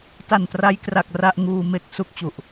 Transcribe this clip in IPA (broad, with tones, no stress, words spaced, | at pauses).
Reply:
ta˨˩ntra˦˥jkra˨˩k̚ ra˥˩ʔ ŋuː˧ me˥˩k̚ su˥˩k̚t͡ɕu˨˩ʔ